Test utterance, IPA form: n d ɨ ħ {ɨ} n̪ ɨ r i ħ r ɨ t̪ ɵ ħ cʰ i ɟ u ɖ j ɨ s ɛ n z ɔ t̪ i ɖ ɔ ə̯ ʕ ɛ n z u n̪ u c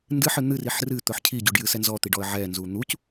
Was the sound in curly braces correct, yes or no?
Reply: yes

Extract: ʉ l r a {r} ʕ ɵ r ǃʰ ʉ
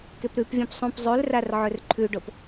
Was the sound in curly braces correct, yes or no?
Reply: yes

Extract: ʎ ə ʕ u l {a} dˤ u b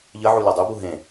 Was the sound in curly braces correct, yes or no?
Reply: yes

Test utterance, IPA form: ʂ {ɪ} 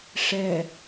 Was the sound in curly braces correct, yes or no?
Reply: no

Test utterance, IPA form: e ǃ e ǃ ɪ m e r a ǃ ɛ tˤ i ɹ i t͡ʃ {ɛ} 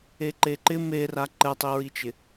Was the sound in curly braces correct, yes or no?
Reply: no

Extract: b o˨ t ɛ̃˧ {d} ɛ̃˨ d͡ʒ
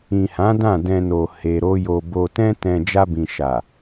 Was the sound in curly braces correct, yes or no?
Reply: no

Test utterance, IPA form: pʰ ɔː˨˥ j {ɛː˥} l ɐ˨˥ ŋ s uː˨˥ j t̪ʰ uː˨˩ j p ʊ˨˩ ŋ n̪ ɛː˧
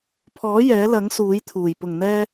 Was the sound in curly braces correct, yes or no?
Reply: no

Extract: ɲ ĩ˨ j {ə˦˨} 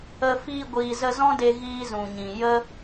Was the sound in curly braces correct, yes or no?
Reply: no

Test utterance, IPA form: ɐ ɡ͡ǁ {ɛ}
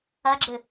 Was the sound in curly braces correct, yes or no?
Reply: no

